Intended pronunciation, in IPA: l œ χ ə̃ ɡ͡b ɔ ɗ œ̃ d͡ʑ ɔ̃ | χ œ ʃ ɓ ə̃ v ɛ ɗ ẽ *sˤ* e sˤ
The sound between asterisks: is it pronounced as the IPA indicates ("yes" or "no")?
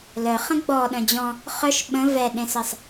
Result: no